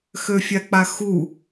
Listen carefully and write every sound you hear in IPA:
x ø fʲ a k͡p a x u

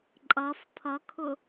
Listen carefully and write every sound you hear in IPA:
ǃʼ ʌ f pʰ ʌ kʰ ʊ

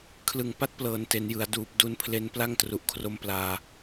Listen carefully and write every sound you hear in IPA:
kʰ l ɯ˨˩ ŋ p a˦˥ t̚ p l ɤː˩˦ n t e˩˦ n j ɯ˩˦ a̯ d uː˨˩ p̚ d u˧ n pʰ l e˧ n p l a˥˩ ŋ t r u˨˩ ʔ kʰ r o˦˥ m p l aː˧

